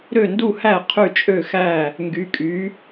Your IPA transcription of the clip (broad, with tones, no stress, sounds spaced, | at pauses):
ɾ ø˥˩ n d u˥˩ h æ˥˩ qʰ y˥˩ t͡ʃʼ ø˥˩ x æ˥˩ | ŋ ɡ y˨˥ kʼ y˨˥